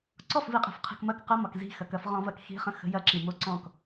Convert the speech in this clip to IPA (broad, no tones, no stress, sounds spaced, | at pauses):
ǀ ɔ f v i qʼ i̤ f qʰ i̤ k m ɐ k q ə m ɒ k z i̤ x ɐ k ɐ f ʁ ɔ̃ v ɐ k x i̤ χ ə̃ x ə̤ j ɐ ǁ i m o ǀ ɔ̃ k